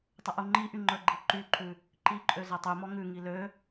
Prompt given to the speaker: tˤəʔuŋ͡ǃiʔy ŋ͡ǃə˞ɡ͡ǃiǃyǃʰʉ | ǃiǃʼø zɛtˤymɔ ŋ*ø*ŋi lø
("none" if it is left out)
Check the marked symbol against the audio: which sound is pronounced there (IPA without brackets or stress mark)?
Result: ʉ